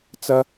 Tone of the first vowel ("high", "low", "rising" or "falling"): high